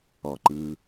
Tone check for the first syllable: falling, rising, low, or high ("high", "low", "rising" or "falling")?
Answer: low